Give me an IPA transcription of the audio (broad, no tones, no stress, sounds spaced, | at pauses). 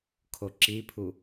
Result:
kʰ o ǁ i pʰ u